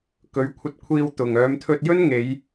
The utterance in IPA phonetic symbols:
kɵ˨˥ɥkʷʰɐ˧t̚kʷʰiː˧w t̪ʊ˨ŋ œː˨˧mt̪ʰɵ˧t̚jɵ˥nŋe˨˧j

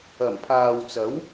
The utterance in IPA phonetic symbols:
ɐ˨˩mpʰaː˨wt͡sɐ˨˥w

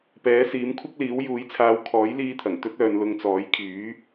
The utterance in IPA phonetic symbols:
pɛː˨˥siː˨˥mkʷʰɐ˥k̚liː˨˥w juː˨˥jt͡sʰaː˨˧w kʰɔː˨˥jliː˧t̪ʰɐ˨˩ŋ t̪ɵ˥t̚œː˨˧n lʊ˧ŋt͡sɔː˨˥j kʰyː˨˥

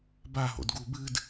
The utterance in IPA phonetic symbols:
baɦo̰d ɡubɨd

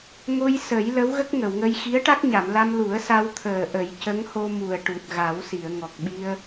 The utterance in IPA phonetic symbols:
ŋo˧j sə˨˩˦j lə˧˥wɣə˦˥k̚ŋə˨˩˨wŋə˧j xi˧˥ə̯ʈa˦˥k̚ɲa˨˩˨mla˧m lu˨˩˦ə̯sa˧w t̪ʰəː˨˩ʔə˨˩˦jcə˧˥ŋho˧ mu˨˩ə̯ʈu˨˩t̚ɣa˨˩˦wsi˨˩˨ə̯ ŋɔ˨˩k̚ɓi˧ə̯

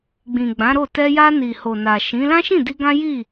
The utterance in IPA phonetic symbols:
ɡ͡bĩ˨ɡ͡bã˨˦ɾo˦˨ tɛ˧ja˧ni˨ ho˨na˨ʃĩ˨˦ lã˦ʃĩ˦˨di˧ ɡã˦ji˦˨

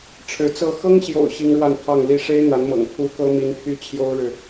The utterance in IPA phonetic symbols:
ʈ͡ʂʰɻ̩˧˥t͡sɤ˥˩ xɤ˥ŋɕjo̰˨˩ʊ̯ ɕi˥ŋɻwa˥˧npʰɑ˥˩ŋ li˧˥ʂe˥ɪ̯ n̪a˧˥nmɤ̰˨˩ŋ pʰu˧˥ kɤ˥mi˧˥npʰy˥ t͡ɕʰjo˥ʊ̯ɻɻ̩˨

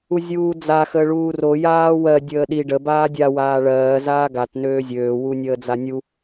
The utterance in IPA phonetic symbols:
uzʲuːd͡za xəːɭuːro jaːwɜ dʲəːɗi ɖə baːdʲa waːɭɜː zaːɡat nøːzʲøː wunʲəːd͡zanʲu

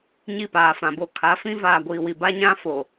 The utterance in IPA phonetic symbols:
ɲi˦˨paː˨fã˨bo˦ kʰa˨˦fĩ˦ vaː˨ɡʷiː˨wi˨ ba˦ɲã˦fo˨

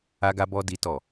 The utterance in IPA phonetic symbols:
a˦ɡa˦bɔ˦ di˦tɔ˦˨

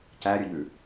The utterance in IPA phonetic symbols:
cæɾʲɵʎʉ

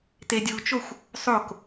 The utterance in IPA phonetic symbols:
tedʲut͡ʃoxʷ | sˤok

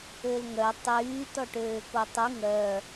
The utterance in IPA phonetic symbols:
ølŋœ tˤyː tɔʈøːkotˤy ŋœ

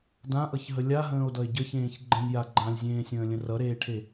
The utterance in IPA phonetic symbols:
dãʔʌçɦə lʲaɦə̃ːo̯dʌe̯ ɟəçẽːç ɡ͡ǃə̃nʲja ɡ͡ǃãlʲzʲẽːsʲə̃ːlʲə̃ rʌɾeːʈʰe

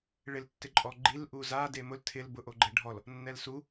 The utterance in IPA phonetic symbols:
ɭɪltːɪǃʼɔ ɡ͡ǃilʔu za demʊl tʰɪl bʊʔoɡ͡ǃɛɖʱɔl | nːɛlsu

